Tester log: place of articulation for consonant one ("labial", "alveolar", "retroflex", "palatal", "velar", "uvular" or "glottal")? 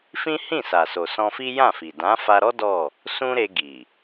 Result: labial